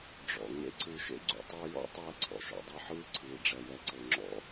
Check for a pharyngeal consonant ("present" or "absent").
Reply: present